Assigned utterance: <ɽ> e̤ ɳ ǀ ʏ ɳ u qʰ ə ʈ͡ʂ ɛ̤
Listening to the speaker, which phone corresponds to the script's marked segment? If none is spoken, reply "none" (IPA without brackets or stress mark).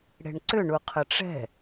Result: ɽ